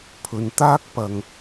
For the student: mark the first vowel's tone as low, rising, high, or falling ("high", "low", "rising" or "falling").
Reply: low